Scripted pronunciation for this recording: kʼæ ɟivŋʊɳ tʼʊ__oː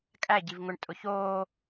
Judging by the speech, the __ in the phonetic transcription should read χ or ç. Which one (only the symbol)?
ç